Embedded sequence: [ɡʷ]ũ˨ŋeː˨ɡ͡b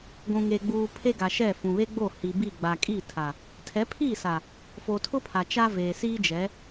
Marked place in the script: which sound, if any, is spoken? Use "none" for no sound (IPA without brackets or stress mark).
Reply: ɡʷ